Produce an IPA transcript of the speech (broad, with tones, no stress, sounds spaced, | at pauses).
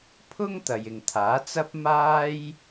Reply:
pʰ ʊ˥ ŋ t̪ ɐ˨ j ɪ˨ ŋ t̪ʰ aː˨˥ t͡s ɐ˥ p̚ m aː˥ j